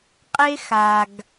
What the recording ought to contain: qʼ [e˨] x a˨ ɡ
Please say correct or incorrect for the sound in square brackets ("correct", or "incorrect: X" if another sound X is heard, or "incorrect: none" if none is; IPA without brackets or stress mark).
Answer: incorrect: e˦